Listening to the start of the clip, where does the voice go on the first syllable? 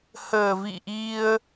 low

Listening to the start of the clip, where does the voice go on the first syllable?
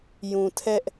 low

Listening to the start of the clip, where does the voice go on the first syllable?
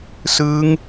rising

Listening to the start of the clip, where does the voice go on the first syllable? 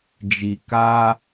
low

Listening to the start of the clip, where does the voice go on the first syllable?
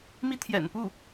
high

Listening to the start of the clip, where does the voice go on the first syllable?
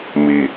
low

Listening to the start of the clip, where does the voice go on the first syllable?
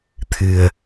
low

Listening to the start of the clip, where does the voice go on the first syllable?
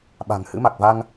low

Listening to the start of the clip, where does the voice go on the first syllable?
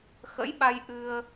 rising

